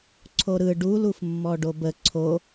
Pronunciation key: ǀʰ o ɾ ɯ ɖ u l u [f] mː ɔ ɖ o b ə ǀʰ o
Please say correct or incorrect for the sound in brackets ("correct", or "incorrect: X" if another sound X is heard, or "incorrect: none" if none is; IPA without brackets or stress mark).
correct